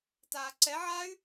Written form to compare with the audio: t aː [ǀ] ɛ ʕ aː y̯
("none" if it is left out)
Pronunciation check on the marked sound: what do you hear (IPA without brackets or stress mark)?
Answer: ǀ